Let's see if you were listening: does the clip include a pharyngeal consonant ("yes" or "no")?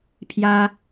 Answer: no